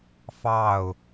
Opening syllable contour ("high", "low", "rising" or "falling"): falling